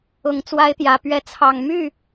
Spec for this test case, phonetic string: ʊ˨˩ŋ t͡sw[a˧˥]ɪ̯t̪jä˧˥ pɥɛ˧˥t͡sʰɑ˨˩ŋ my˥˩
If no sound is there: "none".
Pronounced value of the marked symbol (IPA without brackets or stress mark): a˥